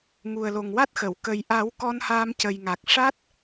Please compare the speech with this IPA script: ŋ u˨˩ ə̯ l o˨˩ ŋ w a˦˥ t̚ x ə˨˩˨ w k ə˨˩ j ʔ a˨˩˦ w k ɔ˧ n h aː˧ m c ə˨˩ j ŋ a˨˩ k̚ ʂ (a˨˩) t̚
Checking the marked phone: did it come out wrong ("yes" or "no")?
yes